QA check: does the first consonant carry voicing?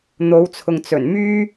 yes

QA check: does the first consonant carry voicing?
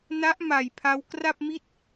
yes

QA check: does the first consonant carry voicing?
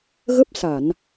yes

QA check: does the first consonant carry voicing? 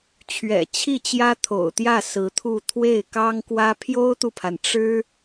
no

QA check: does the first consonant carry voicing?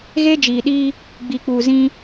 yes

